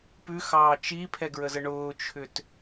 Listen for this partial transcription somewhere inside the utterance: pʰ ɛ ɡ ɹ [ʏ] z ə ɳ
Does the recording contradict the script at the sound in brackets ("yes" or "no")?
yes